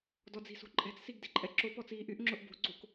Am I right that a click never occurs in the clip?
no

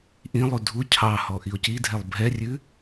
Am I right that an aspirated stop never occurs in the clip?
no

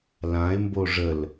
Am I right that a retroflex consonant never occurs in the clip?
no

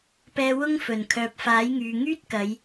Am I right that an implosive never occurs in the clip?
yes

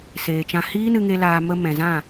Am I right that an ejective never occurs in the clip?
yes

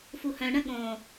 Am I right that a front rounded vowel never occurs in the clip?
no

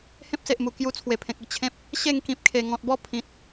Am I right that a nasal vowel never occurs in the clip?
no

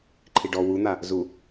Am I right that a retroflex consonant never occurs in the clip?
no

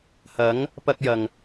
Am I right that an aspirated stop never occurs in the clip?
yes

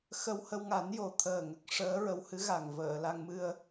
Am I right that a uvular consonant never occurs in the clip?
yes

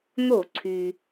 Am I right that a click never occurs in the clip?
no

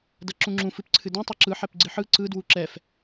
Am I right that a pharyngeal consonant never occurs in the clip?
no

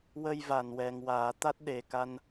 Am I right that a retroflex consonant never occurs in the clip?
yes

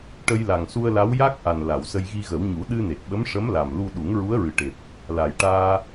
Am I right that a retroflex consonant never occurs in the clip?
no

